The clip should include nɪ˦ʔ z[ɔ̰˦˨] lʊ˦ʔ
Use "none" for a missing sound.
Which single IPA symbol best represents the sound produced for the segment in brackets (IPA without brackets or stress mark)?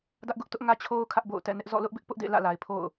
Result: ɔ̰˦˨